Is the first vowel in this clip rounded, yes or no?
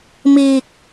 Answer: no